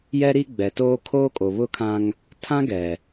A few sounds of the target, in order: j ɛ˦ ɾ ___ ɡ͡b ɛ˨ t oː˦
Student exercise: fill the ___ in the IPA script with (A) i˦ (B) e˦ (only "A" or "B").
A